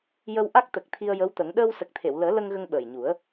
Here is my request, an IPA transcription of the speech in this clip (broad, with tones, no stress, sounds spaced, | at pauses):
j ə˧ w ʔ a˦˥ k̚ t̪ ə˨˩ k̚ t̪ʰ i˧ ə̯ j ə˧˥ w t̪ ə˨˩˦ ŋ ɗ əː˧ w s ə˨˩ k̚ t̪ʰ e˨˩˨ w l əː˨˩˦ l ə˧ ŋ ɣ ə˧ ŋ ɓ əː˨˩ j ɲ u˨˩˦ ə̯